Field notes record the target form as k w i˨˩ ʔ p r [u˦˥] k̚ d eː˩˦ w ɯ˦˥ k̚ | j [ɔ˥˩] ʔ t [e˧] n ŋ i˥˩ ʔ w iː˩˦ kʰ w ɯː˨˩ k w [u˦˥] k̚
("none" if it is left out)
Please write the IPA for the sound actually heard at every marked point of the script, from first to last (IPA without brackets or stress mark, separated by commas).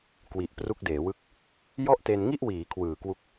u˦˥, ɔ˥˩, e˧, u˦˥